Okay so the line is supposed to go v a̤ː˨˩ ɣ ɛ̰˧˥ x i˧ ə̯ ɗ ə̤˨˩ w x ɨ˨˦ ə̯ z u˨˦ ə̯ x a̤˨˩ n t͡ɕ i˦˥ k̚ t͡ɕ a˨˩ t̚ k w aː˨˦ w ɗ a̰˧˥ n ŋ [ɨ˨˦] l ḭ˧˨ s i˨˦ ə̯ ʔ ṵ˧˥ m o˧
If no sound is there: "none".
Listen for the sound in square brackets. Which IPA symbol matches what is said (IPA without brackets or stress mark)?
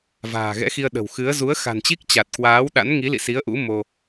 i˨˦